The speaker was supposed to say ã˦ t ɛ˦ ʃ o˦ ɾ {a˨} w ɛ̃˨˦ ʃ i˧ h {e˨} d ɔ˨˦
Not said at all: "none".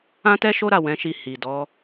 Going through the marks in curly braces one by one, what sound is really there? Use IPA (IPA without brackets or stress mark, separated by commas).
a˦˨, i˨